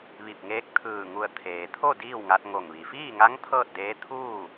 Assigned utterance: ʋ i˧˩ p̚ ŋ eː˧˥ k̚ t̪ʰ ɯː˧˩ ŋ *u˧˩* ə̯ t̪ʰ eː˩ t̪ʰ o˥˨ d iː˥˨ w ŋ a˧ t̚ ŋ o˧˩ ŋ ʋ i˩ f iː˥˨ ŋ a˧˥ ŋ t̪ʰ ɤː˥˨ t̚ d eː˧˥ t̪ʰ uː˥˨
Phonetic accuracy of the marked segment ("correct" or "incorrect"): correct